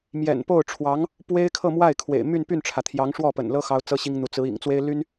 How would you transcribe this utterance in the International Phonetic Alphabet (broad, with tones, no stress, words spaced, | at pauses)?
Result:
mjɛ̰˨˩npo˥˩ʊ̯ʈ͡ʂʰwɑ˧˥ŋ | pwe˥ɪ̯kʰɤ˥˧mwa˥˩ɪ̯kʰwḛ˨˩ɪ̯ my˥˧npy˥˩nʈ͡ʂʰä˩ t̪ʰjɑ˧˥ŋʂwɔ˥˩pə̰˨˩nlɤ˥ xɑ˥ʊ̯t͡sɤ˥ɕi˥ŋn̪u˧˥ t͡sɹ̩˧˥ ḭ˨˩ŋt͡swe˥ɪ̯ly˥n